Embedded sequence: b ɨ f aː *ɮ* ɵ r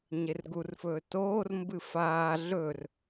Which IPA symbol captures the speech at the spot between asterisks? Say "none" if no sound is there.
ɮ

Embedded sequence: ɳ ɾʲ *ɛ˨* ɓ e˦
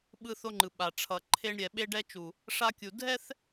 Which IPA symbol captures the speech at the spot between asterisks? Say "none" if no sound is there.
ɛ˨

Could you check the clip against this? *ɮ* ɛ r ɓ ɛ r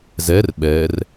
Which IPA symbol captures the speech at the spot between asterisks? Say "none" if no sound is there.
z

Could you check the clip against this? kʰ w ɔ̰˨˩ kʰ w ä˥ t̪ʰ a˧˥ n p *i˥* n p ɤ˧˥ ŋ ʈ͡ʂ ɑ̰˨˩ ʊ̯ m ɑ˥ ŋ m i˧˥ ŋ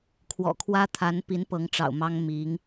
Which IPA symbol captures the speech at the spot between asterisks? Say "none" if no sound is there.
i˧˥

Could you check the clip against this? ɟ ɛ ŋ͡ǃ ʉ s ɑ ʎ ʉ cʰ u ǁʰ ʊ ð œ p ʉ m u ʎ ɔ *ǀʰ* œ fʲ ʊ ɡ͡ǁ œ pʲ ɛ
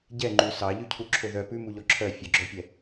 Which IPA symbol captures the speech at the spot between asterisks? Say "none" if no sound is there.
ǁʰ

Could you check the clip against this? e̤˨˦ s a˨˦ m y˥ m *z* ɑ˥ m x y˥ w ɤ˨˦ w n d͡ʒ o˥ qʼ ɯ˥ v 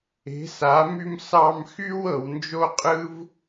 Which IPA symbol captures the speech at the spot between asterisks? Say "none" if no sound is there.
s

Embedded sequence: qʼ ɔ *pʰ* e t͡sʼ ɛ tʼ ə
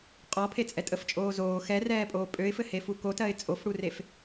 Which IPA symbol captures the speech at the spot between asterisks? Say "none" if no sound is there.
pʰ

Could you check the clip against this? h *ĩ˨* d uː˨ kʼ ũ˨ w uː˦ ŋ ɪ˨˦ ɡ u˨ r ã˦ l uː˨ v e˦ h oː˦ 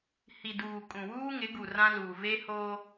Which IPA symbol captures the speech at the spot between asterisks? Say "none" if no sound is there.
i˨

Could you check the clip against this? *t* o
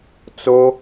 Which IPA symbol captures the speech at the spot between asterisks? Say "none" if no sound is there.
t͡s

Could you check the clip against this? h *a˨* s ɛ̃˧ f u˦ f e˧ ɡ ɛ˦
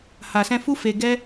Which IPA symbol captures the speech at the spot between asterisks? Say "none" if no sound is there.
a˨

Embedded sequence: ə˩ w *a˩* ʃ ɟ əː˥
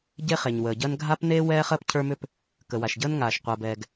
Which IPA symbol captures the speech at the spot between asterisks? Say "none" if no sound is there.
a˩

